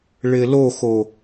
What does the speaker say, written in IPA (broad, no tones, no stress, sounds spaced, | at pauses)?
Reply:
ɭ ɪ l o x o